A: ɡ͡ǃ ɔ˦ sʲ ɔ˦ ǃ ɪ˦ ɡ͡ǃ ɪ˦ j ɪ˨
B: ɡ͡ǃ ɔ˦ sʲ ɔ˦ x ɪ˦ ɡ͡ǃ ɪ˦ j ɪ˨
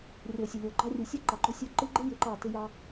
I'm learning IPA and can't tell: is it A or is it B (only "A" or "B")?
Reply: A